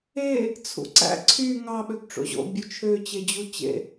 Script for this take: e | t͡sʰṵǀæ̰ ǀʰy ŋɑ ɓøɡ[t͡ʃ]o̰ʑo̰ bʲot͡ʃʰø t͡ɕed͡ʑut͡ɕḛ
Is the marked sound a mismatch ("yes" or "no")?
yes